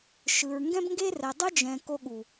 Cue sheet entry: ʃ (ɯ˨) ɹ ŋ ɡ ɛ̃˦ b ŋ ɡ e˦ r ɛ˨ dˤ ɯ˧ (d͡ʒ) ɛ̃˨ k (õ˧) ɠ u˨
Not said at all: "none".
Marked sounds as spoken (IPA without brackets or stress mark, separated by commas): ɯ˨, d͡ʒ, o˧